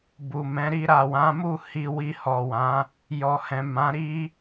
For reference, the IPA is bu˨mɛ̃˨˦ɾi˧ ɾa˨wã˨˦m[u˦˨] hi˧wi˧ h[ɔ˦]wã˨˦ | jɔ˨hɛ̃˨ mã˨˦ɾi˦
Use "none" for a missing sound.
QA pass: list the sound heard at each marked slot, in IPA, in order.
u˦˨, ɔ˨

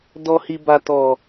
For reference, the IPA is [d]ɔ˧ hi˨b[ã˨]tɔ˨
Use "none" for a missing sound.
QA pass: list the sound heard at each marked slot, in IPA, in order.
d, a˨

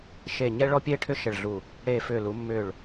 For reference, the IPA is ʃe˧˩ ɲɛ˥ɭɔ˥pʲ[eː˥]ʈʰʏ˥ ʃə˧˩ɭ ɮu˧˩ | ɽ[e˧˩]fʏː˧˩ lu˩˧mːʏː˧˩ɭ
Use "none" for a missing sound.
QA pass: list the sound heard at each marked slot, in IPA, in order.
eː˥, eː˧˩

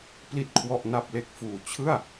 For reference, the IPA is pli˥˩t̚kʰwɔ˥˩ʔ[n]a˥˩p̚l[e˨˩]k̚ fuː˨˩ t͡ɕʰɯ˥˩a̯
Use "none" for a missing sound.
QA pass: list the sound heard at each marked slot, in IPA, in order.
n, e˥˩

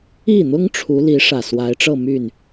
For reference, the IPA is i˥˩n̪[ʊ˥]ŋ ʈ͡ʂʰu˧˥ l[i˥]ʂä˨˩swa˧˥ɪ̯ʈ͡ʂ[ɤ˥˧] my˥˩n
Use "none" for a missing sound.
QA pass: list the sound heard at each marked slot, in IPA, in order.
ʊ˥, i˧˥, ɤ˥˧

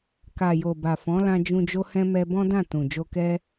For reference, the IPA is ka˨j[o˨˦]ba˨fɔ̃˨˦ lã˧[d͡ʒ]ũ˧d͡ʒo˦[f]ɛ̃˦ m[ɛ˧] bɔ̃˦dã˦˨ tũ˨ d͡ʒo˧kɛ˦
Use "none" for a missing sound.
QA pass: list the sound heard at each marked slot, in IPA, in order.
o˨, d͡ʒ, h, ɛ˦

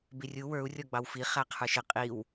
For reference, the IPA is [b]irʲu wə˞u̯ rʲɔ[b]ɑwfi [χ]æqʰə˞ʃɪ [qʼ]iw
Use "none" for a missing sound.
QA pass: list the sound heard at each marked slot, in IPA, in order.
b, ɡ͡b, χ, qʼ

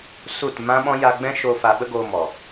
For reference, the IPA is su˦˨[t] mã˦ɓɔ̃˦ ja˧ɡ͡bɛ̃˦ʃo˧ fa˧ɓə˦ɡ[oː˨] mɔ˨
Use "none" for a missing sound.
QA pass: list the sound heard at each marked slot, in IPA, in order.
t, oː˧

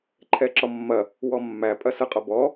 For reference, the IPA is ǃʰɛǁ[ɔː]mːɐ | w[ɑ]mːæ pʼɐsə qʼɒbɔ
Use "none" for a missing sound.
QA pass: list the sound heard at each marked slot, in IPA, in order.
ɔ, ɔ

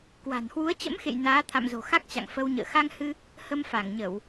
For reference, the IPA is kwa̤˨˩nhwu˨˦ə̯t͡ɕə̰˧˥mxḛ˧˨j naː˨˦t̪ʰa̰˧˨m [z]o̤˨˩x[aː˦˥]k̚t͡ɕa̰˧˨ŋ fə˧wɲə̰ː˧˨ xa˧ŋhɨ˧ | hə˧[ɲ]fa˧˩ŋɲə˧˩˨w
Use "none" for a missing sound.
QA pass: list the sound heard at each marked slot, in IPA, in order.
z, a˦˥, m

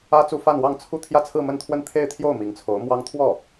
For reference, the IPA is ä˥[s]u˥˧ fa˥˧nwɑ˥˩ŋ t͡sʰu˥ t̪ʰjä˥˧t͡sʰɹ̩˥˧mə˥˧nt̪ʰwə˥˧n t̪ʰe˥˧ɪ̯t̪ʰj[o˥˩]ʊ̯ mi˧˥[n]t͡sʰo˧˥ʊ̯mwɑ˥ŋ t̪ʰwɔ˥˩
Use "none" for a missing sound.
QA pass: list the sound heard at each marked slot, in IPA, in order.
t͡s, o˥˩, ŋ

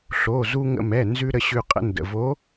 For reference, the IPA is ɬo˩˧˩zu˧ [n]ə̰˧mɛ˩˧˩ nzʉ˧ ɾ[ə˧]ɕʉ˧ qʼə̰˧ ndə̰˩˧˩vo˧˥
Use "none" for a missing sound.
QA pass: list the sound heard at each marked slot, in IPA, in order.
ŋ, ə˧

